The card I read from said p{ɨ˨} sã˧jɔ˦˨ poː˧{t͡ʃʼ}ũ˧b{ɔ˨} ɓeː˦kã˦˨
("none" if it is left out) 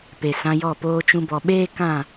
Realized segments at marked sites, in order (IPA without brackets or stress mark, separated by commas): e˨, t͡ʃ, ɔ˨